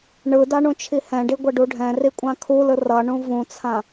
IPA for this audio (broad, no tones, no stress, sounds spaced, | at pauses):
ɳ ɯ d a ɳ ũ t͡ʃʰ i h ɛ̃ ɖ i ɡʷ ɛ ɖ u ɖʱ ɛ̃ r i kʷʼ ã kʰ u l ɯ r ʌ ɳ ũ v ũ t͡sʰ ã